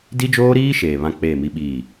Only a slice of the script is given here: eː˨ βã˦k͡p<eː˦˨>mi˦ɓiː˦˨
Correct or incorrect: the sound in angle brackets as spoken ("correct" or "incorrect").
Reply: correct